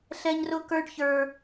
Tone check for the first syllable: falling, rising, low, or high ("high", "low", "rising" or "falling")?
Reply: high